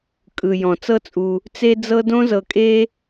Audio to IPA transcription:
kʼɯ˩ jɔ̃˩t͡sɤ˥t͡sʼu˨ | t͡se˦d͡zɤ˦ dõ˦zɤ˨kʼe˦

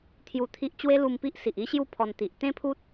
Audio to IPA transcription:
t̪ʰju˧t̪ʰi˦ʔ t͡ɕwe˦lu˧mpi˦ʔ si˨ʔi˦ɕju˥˧ pʰɔ˧nt̪i˨ʔ t̪ẽ˦pʰu˦t̚

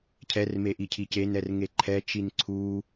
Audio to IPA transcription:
cʰɛrme ʔicʰicenɛr ŋeǃʰɛt͡ʃin ǀʰu

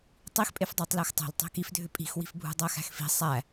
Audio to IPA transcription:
tˤixpʼefdˤʏːtˤ læxtˤæ̤l tˤæ̤kifdʱʏ pʼi̤xwi̤fbʱṳ dˤæxæ̤xfi̤ sˤæ

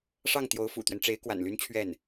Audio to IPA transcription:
ʂɑ˥˩ŋ t̪jo˧˥ʊ̯fṵ˨˩t̪ɥɛ˦nʈ͡ʂe˧˥ɪ̯ kwa̰˨˩nly˥nt͡ɕʰɥɛ˥˩n

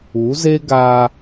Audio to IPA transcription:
u˨˦ze˦ ɡa˦

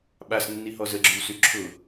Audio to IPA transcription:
ɓasnːiɦɔ zəɡ͡ǁywsy ǁʰʊ

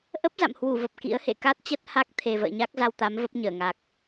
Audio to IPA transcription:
ʔə˦˥p̚za̰˧˨mhwu˧˩və˨˩p̚ kḭ˧˥ə̯hḛ˧˨ ka˦˥t̚t͡ɕə˦˥t̚ha˦˥k̚ t̪ʰe˨˩və̰ː˧˨ɲa˦˥k̚za˧w t̪a˨˦m və˦˥p̚ɲəː˧˩ ŋa˨˩k̚

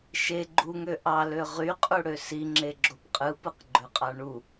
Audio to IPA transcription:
ʃe ɡ͡ǃuŋø ʔɑlø ʁyqʼuɽø siŋ͡ǁeɡ͡ǁop qʼɯpɯqɡ͡ǃøqʼɑ ɳu

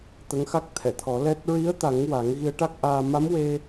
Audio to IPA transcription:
t̪ə˧˥ŋxa˦˥k̚t̪ʰɛ˨˩˨ t̪ʰɔ˨˩˦lɛ˦˥t̚ ɹi˧˥ə̯t̪a˨˩˦ŋ wa˨˩˦ŋ ɣi˧ə̯ʈa˦˥k̚ʔaː˧ ma˧˥mwe˧

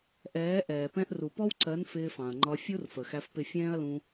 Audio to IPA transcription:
ʔɛː˨˦ʔɛː˨ pɛ̃˧ʔru˨pɔ˦wǀɜ˨˦n fɪː˧fɑ̃˨ɐ̯ŋ͡ǃɒ˧ fʲu˦rfə˨ xæ˧fpɪ˦˨ fʲɛ̃ː˦ɐ̯lũ˧

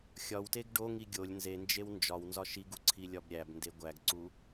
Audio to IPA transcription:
xʲɒwteɡ ɖoŋi ɡʲolʲ nzend͡ʒew nd͡ʒɒw nzɒʃiɡu ǀʰilʲɒbɾʲæbnde ɡʷæɡǀu

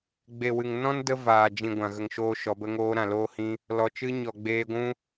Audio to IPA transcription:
ɡ͡be˨wɨ˨ŋ nɔ̃˦ndə˧ vaː˨ d͡ʒĩ˨ ɡʷã˨ɣə˨ŋʃoː˧ ʃɔ˨˦bə˦ŋoː˦ ɾã˨loː˧hĩ˧ | lɔ˨t͡ʃɨ˧ ɲɔ˨ɡ͡beː˧ɡʷũ˦

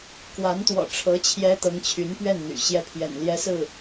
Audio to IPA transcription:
kwa˧˥nt̪wɔ̰˨˩ ʈ͡ʂʰɤ˧˥ t͡ɕʰjɛ˥t̪ɤ˧˥ŋ t͡ɕʰy˧˥npɥɛ˥˩nn̪y̰˨˩ ɕjɛ˥˩pʰjɛ̰˨˩nljɛ˥sɹ̩˥˩

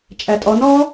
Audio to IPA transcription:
t͡ʃʼætʼɔnɔː

